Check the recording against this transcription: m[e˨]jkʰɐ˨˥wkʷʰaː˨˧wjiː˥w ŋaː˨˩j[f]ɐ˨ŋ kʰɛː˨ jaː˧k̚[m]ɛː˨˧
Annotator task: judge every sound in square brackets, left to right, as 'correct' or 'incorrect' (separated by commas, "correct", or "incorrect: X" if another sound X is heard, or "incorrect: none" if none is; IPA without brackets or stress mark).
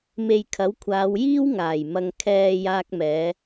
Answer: correct, incorrect: m, correct